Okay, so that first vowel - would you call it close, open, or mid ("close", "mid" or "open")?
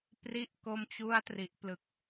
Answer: close